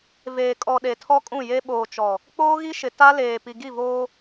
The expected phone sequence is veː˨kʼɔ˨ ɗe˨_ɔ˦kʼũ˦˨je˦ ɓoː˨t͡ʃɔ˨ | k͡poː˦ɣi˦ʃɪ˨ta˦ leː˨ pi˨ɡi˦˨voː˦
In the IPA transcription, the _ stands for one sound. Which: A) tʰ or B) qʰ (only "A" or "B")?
A